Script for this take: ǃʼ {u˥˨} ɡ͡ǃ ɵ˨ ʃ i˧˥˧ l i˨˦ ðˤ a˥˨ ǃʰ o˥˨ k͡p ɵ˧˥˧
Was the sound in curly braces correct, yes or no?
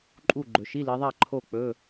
yes